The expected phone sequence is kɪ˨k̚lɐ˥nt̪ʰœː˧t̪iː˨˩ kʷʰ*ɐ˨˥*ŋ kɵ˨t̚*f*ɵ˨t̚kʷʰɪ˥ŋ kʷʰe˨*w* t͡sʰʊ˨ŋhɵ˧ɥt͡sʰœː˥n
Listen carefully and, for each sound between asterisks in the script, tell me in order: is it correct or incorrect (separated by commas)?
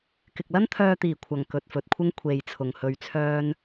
incorrect, correct, incorrect